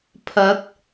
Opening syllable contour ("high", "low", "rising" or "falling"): rising